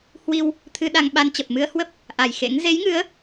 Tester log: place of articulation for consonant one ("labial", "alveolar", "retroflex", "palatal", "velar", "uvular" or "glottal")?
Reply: glottal